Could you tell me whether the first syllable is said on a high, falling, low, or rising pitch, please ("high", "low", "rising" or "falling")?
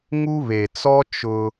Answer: high